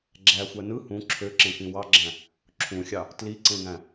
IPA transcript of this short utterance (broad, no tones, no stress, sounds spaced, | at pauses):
ɡ͡ǁ æ xʷ æ n ɯ h ũ ǁʰ ø ǁ ẽ k ĩ w ɑ ɡ͡ǁ æ̃ | ǁʰ ũ xʲ ɑ | t l i ǀ ẽ ŋ æ̃